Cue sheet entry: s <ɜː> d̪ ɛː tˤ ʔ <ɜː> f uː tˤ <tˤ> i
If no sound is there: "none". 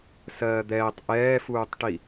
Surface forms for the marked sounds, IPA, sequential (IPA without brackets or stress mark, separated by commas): ɜː, ɛː, ʈ